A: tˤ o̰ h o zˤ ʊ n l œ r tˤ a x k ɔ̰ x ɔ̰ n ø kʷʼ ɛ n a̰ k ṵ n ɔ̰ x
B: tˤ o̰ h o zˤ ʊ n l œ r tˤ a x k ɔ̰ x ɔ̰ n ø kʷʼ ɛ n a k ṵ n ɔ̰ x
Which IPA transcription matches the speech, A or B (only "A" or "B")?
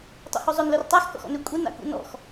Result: A